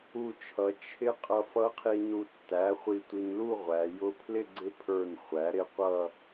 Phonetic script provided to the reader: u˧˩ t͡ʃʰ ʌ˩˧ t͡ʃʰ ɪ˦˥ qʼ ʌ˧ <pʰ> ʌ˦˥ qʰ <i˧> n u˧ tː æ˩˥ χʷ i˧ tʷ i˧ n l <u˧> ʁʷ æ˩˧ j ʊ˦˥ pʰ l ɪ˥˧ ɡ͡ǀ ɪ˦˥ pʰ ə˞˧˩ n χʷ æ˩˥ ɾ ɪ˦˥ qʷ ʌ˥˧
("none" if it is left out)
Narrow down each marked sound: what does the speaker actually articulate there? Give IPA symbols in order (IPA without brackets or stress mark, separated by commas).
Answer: f, i˧, u˥˧